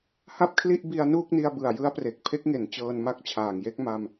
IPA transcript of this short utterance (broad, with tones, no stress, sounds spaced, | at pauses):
h a˥˩ p̚ kʰ l i˥˩ ʔ b i˧ a̯ n uː˥˩ k̚ n i˧ a̯ b ɯ˨˩ a̯ j ɯ˦˥ a̯ p r e˨˩ k̚ pʰ e˦˥ k̚ ŋ e˩˦ n t͡ɕ ɤː˧ n m a˦˥ k̚ t͡ɕʰ aː˨˩ ŋ j e˥˩ k̚ m a˧ m